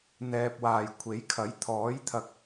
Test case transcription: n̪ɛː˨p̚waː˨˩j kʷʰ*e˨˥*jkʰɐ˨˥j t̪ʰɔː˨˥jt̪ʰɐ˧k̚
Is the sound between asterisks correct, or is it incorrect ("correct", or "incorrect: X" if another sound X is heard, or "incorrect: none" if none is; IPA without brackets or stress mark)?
correct